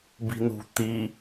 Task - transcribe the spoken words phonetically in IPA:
b i̤ n ṳ t̪ i

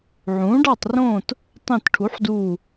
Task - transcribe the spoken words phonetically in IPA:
ʕ ũː˩˥ ɖ ɑ˥˨ tˤ r õː˥˨ t | tˤ ẽ˥˨ t ʈʰ u˩˥ ħ d uː˧˩

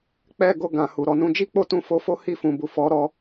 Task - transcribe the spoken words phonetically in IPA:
k͡p ɛ˦ ɡ o˧ ɡ ã˨ h u˨ ɾ ɔ˧ n ũ˦ d͡ʒ i˦ k͡p o˦ t ũ˧ f o˦ f o˦ h i˦˨ f ũ˨ b u˨ f ɔ˨˦ ɾ ɔ˧

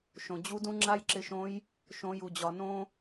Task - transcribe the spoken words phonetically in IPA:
ʃ õ˩ d͡ʑ u˧˥ d ũ˥ ŋ͡ǁ a˥ j ǁ ɪ˧ ʃ õ˧˥ j | ʃ õ˩˧ j u˩ d͡ʑ ɒ˩ n õ˧

